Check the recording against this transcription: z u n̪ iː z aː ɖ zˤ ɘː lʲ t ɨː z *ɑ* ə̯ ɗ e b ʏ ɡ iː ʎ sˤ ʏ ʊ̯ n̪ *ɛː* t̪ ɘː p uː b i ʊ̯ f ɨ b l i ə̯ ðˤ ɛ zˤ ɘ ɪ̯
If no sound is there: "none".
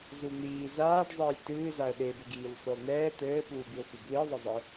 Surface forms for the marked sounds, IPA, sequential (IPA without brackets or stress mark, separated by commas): a, ɛː